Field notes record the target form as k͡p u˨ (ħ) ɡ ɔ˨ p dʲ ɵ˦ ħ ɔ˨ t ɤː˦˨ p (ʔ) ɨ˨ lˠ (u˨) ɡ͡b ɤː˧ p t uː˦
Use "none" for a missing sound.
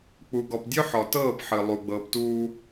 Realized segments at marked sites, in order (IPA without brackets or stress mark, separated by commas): none, ħ, u˨